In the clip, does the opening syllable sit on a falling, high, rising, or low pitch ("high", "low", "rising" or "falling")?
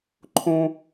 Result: high